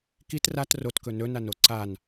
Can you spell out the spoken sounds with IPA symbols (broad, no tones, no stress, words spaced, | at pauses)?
kit rat rotkɵ nɵnano ǀan